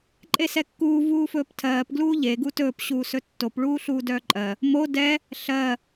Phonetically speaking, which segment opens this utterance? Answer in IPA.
ǃʼ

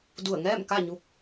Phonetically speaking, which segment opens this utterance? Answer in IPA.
d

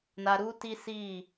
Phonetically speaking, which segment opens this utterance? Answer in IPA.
n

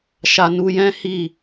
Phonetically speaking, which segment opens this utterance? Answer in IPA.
ʃ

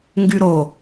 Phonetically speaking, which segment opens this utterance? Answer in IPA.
ŋ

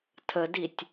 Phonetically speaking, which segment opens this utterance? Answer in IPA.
tʰ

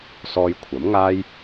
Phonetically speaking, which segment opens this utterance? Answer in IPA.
s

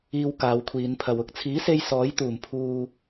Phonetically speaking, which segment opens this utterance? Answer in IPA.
iː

